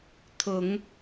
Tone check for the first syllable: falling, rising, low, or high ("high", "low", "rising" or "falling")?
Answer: low